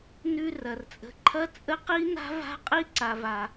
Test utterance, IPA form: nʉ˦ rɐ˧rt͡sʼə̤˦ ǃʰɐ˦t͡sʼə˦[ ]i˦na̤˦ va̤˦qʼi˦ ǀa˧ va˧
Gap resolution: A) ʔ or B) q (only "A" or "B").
B